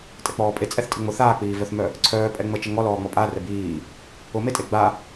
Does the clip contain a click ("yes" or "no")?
yes